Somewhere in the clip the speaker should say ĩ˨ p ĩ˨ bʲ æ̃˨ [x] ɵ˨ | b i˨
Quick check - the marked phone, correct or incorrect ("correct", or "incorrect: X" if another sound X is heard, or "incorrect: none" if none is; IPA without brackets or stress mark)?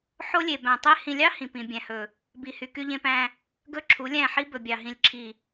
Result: incorrect: h